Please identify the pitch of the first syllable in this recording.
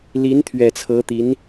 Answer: rising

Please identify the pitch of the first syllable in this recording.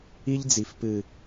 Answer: high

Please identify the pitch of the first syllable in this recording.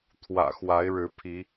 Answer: low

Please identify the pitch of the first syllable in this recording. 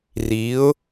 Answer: rising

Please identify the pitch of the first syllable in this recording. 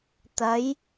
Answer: rising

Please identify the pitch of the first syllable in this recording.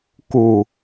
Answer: falling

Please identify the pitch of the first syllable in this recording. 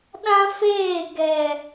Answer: high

